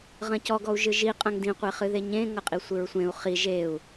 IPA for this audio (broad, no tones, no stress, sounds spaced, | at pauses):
ʁ ɐ̃ c ɔ ɡ ɔ u̯ ʒ ɨ ʒ i qʼ ɐ̃ ŋ d ĩ qʷ e χ ɨ ð e ɲ ẽ ŋ ɐ qʼ i sʷ ɨ ɹ sʷ ẽ u̯ χ i ʒ e u̯